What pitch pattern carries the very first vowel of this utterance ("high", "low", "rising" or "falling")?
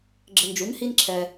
low